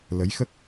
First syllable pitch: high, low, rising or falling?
rising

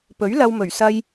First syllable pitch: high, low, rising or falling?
rising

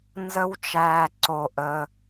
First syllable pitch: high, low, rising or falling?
high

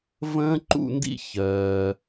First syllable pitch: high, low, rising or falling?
high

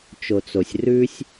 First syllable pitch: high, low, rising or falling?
low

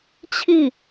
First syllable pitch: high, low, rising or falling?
falling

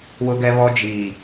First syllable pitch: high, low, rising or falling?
high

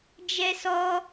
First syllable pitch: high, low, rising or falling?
high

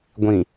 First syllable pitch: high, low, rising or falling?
low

